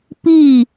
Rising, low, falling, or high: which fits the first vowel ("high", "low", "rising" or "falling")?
falling